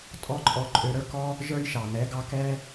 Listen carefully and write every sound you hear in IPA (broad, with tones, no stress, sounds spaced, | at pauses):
tʼ ɔ˧ ǃʼ ɔ˧ ǃʼ ø˧ ɾ ə˞˦ k ɔ˦ | ʒ ə˞˦ j ʃ ɑ˨ n ɛ˨˦ ɡ ɑ˧ k ɛ˦